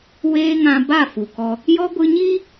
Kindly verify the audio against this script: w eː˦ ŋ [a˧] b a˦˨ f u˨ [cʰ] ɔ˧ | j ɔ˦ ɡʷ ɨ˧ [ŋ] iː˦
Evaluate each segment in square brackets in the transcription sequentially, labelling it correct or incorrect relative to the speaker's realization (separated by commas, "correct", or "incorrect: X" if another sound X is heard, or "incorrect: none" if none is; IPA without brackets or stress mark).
incorrect: ã˧, incorrect: k, incorrect: ɲ